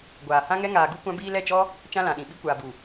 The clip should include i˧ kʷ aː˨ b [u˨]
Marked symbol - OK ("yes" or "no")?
yes